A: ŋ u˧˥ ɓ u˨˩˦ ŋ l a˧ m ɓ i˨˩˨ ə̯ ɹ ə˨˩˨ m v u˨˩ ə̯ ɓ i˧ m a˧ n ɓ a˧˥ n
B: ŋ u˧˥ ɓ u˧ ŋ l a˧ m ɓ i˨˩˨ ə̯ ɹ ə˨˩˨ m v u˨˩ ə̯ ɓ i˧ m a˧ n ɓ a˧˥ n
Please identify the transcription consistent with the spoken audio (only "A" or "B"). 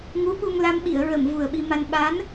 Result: B